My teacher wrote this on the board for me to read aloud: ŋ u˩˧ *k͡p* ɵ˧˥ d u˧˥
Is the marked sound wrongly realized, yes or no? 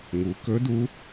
yes